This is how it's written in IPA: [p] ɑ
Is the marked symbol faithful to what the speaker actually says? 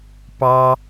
yes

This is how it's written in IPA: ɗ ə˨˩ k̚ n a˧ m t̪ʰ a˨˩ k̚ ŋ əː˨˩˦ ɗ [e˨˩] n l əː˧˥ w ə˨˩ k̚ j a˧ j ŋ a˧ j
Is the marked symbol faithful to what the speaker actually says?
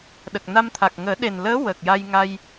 yes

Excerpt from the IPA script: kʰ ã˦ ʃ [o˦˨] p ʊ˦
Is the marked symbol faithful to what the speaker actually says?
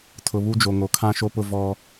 no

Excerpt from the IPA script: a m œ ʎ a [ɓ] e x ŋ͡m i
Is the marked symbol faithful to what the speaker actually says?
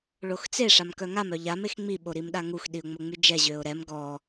no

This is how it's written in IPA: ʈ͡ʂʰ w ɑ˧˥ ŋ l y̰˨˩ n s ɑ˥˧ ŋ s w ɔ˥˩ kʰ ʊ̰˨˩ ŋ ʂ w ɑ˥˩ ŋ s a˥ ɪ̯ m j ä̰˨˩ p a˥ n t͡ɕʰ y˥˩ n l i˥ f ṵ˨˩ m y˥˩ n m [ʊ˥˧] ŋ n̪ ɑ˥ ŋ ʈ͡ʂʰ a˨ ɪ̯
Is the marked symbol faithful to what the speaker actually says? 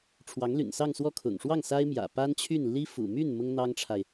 no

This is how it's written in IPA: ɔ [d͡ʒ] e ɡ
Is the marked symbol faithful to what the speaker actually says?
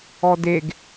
no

